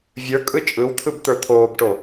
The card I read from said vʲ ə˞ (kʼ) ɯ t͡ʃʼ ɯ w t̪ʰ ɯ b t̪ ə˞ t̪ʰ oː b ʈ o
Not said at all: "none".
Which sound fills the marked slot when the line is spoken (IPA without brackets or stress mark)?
kʼ